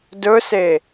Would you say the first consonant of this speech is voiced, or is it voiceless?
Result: voiced